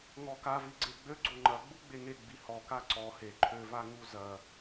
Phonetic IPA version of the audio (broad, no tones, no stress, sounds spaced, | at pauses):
ŋ ɔ k a v i ɡ͡ǀ e ɡ͡b ø ɡ͡ǀ o ŋ͡ǃ ɐ ɡ͡b u ɡ͡b e ŋ e ɡ͡b i h ɔ k a ǀ ɔ h e ǃʰ ø v a ŋ u z ɐ